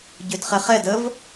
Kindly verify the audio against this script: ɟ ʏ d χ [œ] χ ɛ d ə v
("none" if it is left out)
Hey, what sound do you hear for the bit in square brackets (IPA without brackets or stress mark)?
ɛ